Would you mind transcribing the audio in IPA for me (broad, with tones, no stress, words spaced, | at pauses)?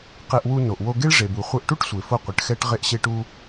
qe˧ʔwu˧ no˩ʔwo˧ ɡe˥ɭʐe˩bu˩ χʷɛ˧ʔʈu˥ʈsʷe˩ fo˧qʷɘ˩ʈxɛ˧ʈ ʁe˧ʔɕe˧ʈu˧